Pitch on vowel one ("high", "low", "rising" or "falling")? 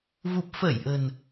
low